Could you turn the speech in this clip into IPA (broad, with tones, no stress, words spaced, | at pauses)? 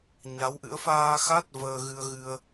ɲa˨˦wʔɨ̰˧˥ə̯ faː˧ xa˦˥t̚ vəː˧ɣɨ˧ə̯ɣɨ˧ə̯